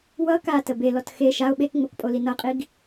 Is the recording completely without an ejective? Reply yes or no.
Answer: no